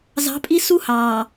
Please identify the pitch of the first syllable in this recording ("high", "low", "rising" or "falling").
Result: rising